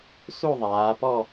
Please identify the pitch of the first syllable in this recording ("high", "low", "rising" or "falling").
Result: falling